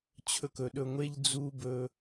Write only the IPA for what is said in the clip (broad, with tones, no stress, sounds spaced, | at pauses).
t͡ɕʰ ɵ˧ k ɵ˨ ɗ ɵ˧ ŋʷ e˦ ʎ d͡z u˦ b ɵ˧